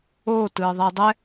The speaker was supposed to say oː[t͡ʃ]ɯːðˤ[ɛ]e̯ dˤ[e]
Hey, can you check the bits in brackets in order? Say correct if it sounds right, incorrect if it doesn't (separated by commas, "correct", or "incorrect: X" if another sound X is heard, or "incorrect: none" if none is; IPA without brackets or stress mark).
incorrect: t, correct, incorrect: ɛ